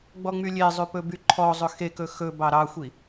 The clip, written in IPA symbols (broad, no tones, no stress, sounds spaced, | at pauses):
ɡ͡b ɔ ŋ͡m y lʲ e zˤ ʉ p ɵ b y ǃʰ ɔ zˤ ɵ x e k ɵ x ɵ b ɑ ɾ ɑ xʷ i